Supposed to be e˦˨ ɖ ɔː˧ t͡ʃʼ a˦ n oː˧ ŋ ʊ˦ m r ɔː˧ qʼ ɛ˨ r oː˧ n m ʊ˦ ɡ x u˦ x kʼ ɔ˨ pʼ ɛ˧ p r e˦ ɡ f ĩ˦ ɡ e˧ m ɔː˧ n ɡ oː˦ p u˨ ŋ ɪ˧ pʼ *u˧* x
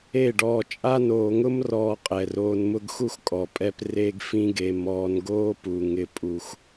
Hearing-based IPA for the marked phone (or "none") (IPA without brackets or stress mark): u˧